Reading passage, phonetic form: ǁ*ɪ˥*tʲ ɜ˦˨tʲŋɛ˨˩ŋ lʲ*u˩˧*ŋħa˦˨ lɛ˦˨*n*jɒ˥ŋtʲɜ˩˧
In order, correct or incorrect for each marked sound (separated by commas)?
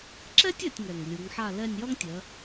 incorrect, correct, incorrect